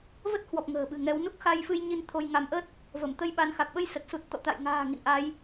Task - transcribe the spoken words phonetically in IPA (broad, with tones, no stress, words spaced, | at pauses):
və˦˥t̚hwɔ˨˩p̚ ŋə̤ː˨˩ɓɨ̤˨˩ŋɛ˨˦w nu˦˥k̚xa˧jfɨ˧j ɲi˧n t̪ʰo˧jŋa˧m ʔə˦˥t̚ | və˧˩m t̪ə˧jɓa˨˦nxa˨˩k̚ ɓə˧jsə˨˩t̚su˨˩t̚t̪ɔ̰˧˨ t̪a̰˧˨jŋa̤ː˨˩ ŋḭ˧˨nʔa˨˦j